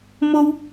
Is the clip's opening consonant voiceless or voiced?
voiced